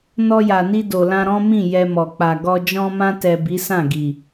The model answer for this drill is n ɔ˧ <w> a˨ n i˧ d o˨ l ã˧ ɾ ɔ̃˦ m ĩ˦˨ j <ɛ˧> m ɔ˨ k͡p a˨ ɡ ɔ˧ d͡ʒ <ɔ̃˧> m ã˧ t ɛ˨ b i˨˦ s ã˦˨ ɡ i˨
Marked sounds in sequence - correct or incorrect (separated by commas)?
incorrect, correct, correct